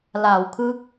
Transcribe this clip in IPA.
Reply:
l a˩˦ w kʰ ɯ˦˥ k̚

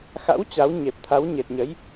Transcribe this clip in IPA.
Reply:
x a̰˧˥ w t͡ɕ a˨˦ w ɲ e˨˩ p̚ t̪ʰ a˨˦ w ɲ e˨˩ t̚ ɲ ə˨˦ j

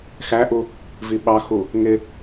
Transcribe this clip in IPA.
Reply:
x æ ʔ u | v i ɓ ɑ x u | ŋ ɪ

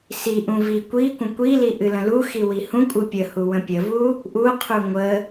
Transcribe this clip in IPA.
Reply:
s i ʔ ũ v i kʷ i kʷ ə̃ kʷ i l i ʔ ɨ l ə̃ l u x i w i h ũ kʷʼ ɨ pʲ ə h u w ə̃ pʲ ə v u | ʔ u qʰ u ŋʷ ə

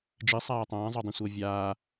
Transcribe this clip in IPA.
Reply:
d͡ʒ i sˤ aː tˤ ãː zˤ o dˤ ĩ sʷ ʌː vʲ aː

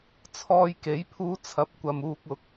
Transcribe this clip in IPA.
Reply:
t͡sʰ ɔː˧ j k e˨˥ j pʰ uː˧ t͡sʰ ɐ˨˥ p̚ kʷ ɐ˨ m uː˧ k̚ ʊ˨˥ k̚

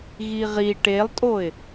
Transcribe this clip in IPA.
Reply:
ɣ i ʁ i ʈ e lˠ tʼ o ɪ̯

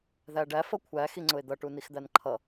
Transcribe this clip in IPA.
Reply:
ð æ ɖ æ f ʌ kʷʰ æ x i ŋ͡ǀ ʊ e̯ d̪ ʌ ʈ u n i x d̪ æ n ǃʰ ʌ

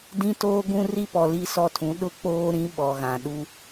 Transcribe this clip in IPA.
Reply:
d ĩ˦ t oː˦ ɡ ũ˦ r i˦ p ɔ˨ l i˦˨ s ɔ˦˨ tʰ ũ˨˦ ɗ ʊ˦ k͡p oː˦ ɾ ĩ˦ ɓ ɔ˨ ɣ ã˨ ɗ u˦

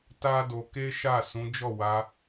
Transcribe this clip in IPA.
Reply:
t a˦ d o˧ k e˦ ʃ a˦˨ s ũ˨˦ d͡ʒ ɔ˦˨ w a˧

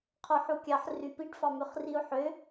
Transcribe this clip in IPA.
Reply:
qʰ o ħ u kʲ ɑ ħ r y p i ɖ f ɑ m ø χ r i u̯ ħ ø

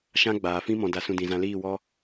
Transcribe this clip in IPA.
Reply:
ʃ ã˦ ɡ͡b aː˨ f ĩ˧ m ɔ̃˨ d a˧ s ũ˧ d ĩ˨ z ã˧ l iː˦˨ w ɔ˦

